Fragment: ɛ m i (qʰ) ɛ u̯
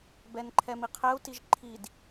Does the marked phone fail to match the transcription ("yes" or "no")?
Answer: no